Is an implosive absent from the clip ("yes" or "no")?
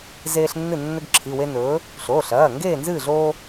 yes